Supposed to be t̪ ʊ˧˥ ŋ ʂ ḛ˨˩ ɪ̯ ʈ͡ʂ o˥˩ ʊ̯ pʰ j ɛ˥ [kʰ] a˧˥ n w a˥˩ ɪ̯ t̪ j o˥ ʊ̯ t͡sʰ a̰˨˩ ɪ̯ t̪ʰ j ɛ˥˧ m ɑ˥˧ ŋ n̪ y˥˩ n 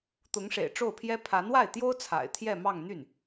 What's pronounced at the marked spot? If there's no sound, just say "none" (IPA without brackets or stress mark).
pʰ